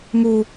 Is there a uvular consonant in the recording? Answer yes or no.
no